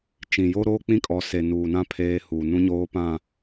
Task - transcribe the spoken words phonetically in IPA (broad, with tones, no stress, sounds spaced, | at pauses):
t͡ʃ ĩ˨ j o˦ ɾ oː˦ k͡p ĩ˦ kʼ ɔ˨ s e˨ n uː˨ n ã˦ pʰ eː˦ h uː˨ n ũ˦ ɲ oː˦ p ã˦˨